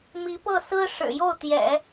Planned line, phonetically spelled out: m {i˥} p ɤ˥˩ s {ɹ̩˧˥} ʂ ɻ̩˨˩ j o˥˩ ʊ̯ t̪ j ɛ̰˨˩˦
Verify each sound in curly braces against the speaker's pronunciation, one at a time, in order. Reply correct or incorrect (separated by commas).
incorrect, incorrect